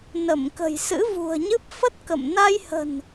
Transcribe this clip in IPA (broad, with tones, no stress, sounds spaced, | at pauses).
n ə˧˩ m k ə̤˨˩ j s ɨ̰˧˥ v ṳ˨˩ ə̯ ɲ ɨ˦˥ p̚ f ə˦˥ t̚ k ə̰˧˨ m n a˧ j h ə̤˨˩ n